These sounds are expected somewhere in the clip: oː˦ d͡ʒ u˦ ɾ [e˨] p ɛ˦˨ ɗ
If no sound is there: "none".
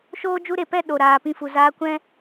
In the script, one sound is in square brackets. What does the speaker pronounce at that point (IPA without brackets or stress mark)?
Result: e˨